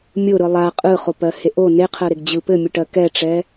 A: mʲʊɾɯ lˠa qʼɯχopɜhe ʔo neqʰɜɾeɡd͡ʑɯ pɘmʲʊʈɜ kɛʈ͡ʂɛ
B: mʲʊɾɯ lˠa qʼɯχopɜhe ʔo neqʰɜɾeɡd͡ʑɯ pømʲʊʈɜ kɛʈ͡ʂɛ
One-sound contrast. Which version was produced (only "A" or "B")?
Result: A